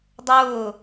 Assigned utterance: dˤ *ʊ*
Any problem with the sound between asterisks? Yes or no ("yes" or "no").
yes